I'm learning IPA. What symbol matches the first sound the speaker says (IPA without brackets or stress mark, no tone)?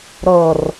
ɾ